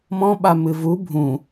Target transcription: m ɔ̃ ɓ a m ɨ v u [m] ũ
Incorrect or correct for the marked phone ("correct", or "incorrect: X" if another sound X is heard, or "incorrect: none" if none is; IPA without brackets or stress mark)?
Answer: incorrect: bʱ